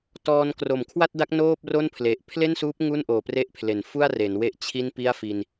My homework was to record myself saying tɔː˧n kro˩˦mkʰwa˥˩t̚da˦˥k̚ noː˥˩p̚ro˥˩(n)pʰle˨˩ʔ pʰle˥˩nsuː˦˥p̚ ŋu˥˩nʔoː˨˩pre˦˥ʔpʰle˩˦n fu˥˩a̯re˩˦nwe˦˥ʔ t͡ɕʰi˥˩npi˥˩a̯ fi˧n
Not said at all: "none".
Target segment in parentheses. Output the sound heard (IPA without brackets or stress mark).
n